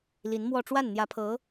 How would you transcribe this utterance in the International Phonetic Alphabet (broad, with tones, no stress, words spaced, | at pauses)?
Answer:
li˧˥nmwɔ˥˧ ʈ͡ʂwa˥˩nn̪jä˧˥pʰɤ˧˥